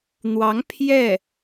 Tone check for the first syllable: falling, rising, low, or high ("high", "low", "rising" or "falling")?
rising